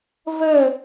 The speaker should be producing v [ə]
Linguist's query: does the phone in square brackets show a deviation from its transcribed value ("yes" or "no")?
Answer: no